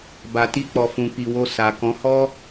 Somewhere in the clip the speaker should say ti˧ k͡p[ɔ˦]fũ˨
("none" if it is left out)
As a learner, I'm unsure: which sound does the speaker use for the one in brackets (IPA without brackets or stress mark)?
ɔ˨